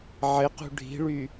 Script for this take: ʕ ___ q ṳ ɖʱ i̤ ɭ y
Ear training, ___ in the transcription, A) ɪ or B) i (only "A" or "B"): A